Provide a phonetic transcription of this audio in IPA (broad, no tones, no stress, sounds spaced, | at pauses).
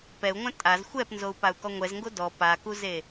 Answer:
p ɛ u̯ ŋʷ ã tʼ a z xʷ ɛ p n z o u̯ p a u̯ k ɔ ŋʷ ɛ z ŋ ɡ o d ɔ p a k u z e